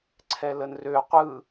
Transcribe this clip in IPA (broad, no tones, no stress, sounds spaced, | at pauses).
ǀʰ ɛ l ə n r ø qʷ ɯ